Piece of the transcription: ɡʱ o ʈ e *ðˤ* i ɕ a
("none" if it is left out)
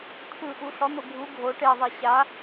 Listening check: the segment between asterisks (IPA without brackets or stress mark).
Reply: ðˤ